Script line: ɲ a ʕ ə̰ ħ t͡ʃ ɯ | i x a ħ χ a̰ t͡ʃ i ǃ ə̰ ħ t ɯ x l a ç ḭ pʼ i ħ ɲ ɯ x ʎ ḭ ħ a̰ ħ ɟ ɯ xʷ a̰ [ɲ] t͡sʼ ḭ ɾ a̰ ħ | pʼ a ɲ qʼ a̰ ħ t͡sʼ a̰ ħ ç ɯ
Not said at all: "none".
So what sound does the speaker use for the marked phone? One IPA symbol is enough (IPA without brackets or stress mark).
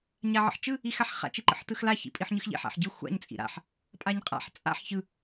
ɲ